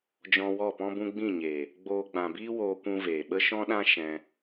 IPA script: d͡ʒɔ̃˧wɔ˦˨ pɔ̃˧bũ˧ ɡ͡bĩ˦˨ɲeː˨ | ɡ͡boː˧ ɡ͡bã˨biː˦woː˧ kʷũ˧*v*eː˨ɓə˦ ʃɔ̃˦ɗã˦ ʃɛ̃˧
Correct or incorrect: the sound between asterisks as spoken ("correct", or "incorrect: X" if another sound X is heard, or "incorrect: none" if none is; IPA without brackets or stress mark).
correct